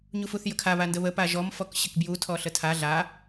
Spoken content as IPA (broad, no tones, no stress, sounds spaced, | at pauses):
ɲ u f u θ j ə kʰ a β a n d ə β ə p a ʒ ɔ m f ɔ k ɕ ɘ k b j u tʰ ɔ ɬ ə tʰ a ɮ a